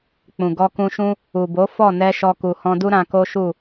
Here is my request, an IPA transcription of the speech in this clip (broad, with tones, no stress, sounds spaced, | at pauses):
k͡p ũ˨ ɡ ɔ˧ k ũ˧ ʃ ũ˦ | u˨ b o˨˦ f ɔ˦˨ n ɛ˧ ʃ ɔ˧ k u˨ h ɔ̃˧ d u˦ ɾ ã˧ k o˦ ʃ u˦˨